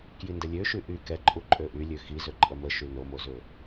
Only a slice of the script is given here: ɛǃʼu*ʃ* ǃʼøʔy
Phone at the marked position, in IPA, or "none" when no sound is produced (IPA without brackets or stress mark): none